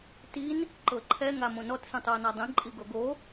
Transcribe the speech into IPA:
tin | ǃɤǃʰɛ ŋamõnɔt sũtˤuə̯nadˤĩ ǃʼiɡoɡo

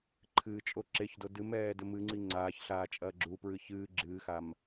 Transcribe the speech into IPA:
ǃʰɨːt͡ʃʼo ǁeçdo dɨmɛː dɘmɨŋ͡ǀi ŋ͡ǀaːç ɬaːt͡ʃʼɐːɡ͡ǁupɹɨ çɨː ɡ͡ǁɨːxam

